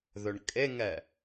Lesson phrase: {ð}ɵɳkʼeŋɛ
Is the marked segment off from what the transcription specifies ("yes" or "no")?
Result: no